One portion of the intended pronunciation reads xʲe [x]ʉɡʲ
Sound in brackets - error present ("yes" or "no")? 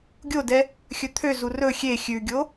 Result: yes